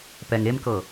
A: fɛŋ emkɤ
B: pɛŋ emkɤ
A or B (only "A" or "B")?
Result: B